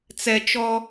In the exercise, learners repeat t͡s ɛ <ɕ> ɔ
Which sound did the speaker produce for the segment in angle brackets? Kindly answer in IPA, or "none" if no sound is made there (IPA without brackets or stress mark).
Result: t͡ʃ